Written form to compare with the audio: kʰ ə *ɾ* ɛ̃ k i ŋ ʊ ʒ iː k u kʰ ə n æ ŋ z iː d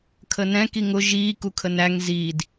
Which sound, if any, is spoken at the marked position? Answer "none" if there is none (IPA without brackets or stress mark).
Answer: n